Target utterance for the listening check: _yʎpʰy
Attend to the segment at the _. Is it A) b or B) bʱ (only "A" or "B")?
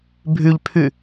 B